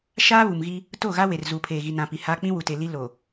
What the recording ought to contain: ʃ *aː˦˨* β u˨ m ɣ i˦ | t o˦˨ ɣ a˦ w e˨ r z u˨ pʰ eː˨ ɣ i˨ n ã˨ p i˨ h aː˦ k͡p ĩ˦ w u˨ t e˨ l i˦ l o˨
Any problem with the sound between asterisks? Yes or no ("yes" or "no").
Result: yes